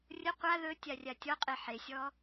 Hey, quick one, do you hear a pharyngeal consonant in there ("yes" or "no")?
yes